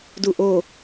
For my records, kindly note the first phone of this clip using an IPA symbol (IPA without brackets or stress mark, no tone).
d